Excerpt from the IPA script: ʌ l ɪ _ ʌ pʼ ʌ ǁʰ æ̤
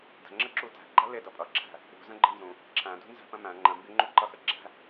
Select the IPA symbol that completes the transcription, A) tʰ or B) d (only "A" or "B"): B